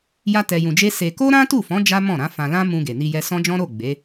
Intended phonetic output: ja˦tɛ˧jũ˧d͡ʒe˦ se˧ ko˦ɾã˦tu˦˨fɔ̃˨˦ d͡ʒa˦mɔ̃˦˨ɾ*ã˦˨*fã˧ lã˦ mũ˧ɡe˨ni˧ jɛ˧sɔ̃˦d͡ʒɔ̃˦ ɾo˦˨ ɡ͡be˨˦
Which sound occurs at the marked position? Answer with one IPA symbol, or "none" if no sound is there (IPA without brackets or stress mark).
ã˨˦